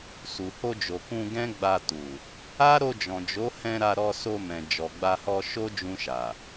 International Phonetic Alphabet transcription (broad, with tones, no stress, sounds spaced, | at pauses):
s u˨ h o˧ d͡ʒ o˨ k ũ˧ ɡ ɛ̃˦ ɡ͡b a˧ t u˨ | a˦ ɾ o˧ d͡ʒ ɔ̃˨ d͡ʒ o˨˦ h ɛ̃˧ ɾ a˧ ɾ ɔ˧ s o˧ m ɛ̃˨ d͡ʒ ɔ˨ ɡ͡b a˧ h ɔ˧ ʃ o˦ d͡ʒ ũ˧ ʃ a˨